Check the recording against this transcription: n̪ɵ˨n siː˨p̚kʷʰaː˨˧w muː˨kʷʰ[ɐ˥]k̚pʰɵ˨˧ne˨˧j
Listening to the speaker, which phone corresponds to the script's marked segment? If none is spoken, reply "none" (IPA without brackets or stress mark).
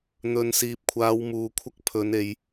ɐ˥